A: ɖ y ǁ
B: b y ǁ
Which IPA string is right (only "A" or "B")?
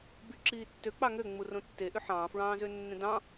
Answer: B